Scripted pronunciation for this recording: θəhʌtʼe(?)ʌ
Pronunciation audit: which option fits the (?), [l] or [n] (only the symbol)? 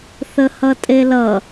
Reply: l